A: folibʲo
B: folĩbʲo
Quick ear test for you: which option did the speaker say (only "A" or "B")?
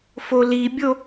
A